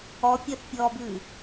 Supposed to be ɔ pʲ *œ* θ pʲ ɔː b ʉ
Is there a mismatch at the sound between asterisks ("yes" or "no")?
no